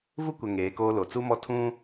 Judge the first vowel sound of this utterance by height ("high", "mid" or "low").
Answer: high